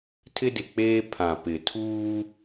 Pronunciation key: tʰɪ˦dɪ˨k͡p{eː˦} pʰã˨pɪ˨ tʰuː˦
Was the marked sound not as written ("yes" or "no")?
no